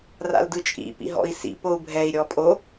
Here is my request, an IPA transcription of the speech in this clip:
ra̰ldɯt͡ʃʼḭ pḭɦɔ̰i̯sḭ pou̯bʱɛi̯ ɾʲɔpʼo

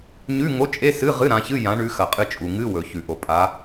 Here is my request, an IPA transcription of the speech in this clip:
ɲʉ˧˥˧ŋo˧˥˧t͡ʃʼe˧˥˧ sɨ˧˥˧ ʁɨ˧˥˧ɾã˨˦çɨ˧˥˧ jã˨˦ɳʉ˨˦xɐ˩qʼɨ˨˦ t͡ʃʼu˩ŋɨ˧˥˧wɵ˩ çʉ˩ʔo˩pʼa˨˦

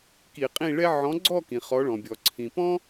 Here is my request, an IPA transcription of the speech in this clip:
ki˧˩˧qʼĩ˥˨ɭɛ˥ ʕɔ̃˨˥ɡ͡ǀɔ˥˨ kĩ˩χɔ˨˥ɭɔ̃˩bʲɔ˩ ǀʰĩ˩pɔ̃˥

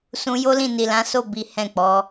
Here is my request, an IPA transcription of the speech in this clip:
sũ˧jo˦lĩ˦˨ ni˨lã˨˦so˦˨ bi˨˦hɛ̃˦˨ k͡pɔ˨˦

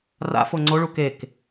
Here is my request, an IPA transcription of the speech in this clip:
ra̰fo ŋ͡ǀoɭu kek

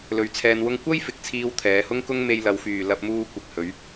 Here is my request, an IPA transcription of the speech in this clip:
lɵ˧ɥt͡sʰɛː˧nwʊ˥ŋ kʷɐ˥j fɪ˨˥k̚t͡sʰiː˧w t̪ʰɛː˨˧hʊ˥ŋkʊ˥ŋ me˧jlɐ˨˧wfyː˨ lɐ˧p̚muː˧ kʷɪ˨k̚hɵ˨˧ɥ

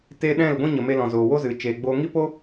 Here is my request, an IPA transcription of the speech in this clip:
te˦ ɗɛ̃˦˨lɡʷĩ˦ɲə˨ me˧lɔ̃˨zoː˨ wo˦zɨ˨ t͡ʃeː˨ɡ͡boː˧ ŋi˦po˦

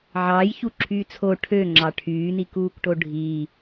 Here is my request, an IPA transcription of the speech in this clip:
ʕɑːj çuǁʰyːt͡sʰo ʈʰøŋ͡ǁɑ ʈʰyːnikuːkʈo ɖʱi

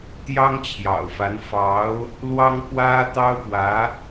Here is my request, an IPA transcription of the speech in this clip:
t̪jɑ˥ŋt͡ɕʰjɑ̰˨˩ʊ̯fa˧˥n fɑ˧˥ʊ̯ | lwɑ˥ŋpwä˥ t̪ɑ˥ʊ̯pwä˧˥

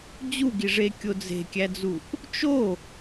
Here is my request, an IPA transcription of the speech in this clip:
d͡ʑuɡiʐekʲo d͡ze̤kʲæd͡zuʔ | t͡ʃo

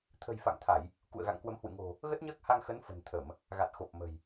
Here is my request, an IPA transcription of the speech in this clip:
t̪ʰə̤˨˩j fa̰˧˨ŋt̪ʰa˧˩˨j | kṵ˧˨ə̯ɣa̰˧˨ŋkwə˨˦mhwɨ̰˧˨ ŋo̤˨˩ | ɣə˦˥t̚ɲəː˦˥k̚ha˧ŋ xə˨˦n fə̤˨˩n t̪ʰə˧˩˨m | ɣa˨˩t̚xo˨˩p̚mə̤˨˩j

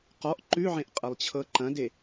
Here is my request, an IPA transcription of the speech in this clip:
qɔʔ ǃʉʕẽʔqʼɐlˠt͡ɕʰɤ ǃɐ̃de

